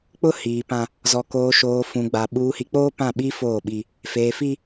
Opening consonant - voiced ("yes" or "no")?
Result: no